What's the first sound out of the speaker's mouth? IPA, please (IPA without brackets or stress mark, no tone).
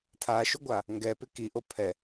tʰ